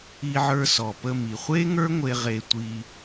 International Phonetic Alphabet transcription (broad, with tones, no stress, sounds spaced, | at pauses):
i˧ ʕ ə˞˧ s ɔ˩ p ə˧ m i˩ χʷ e˥ ŋ ə˞˥ ŋʷ e˧ ʁ e˧ tʷ i˧